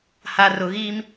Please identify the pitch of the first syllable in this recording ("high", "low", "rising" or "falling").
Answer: high